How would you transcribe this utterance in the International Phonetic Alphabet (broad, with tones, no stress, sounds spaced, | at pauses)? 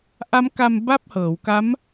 ʔ a˦˥ m k a˧ m b a˥˩ p̚ h ɤː˩˦ w k a˦˥ m